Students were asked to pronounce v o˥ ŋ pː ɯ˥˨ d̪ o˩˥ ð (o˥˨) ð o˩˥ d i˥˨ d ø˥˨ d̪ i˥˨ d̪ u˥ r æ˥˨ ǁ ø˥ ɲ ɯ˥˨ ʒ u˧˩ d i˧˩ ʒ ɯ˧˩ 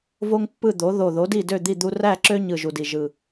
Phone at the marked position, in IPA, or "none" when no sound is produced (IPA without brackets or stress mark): o˧˩